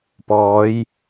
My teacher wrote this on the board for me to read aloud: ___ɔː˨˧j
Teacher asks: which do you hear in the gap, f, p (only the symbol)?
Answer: p